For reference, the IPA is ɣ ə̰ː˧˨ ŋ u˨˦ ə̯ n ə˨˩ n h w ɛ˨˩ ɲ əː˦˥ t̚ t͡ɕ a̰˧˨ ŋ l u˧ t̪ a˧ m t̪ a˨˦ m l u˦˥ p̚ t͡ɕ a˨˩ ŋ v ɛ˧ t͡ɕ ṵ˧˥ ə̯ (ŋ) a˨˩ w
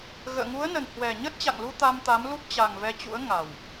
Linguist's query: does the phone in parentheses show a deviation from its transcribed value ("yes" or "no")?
no